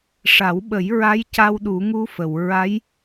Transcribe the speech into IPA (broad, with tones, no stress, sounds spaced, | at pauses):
ʂ a˨˩˦ w ɓ ə˨˩˦ j ɹ a˧˥ j c a˧ w ɗ u˨˩˦ ŋ u˧˥ f ə˨˩˨ w ɹ a˧˥ j